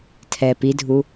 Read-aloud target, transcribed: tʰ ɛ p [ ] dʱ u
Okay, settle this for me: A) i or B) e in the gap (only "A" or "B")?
A